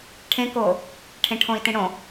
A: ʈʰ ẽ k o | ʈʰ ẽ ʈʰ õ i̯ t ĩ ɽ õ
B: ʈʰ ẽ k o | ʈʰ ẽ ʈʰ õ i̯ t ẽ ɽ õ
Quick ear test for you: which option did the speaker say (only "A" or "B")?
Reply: A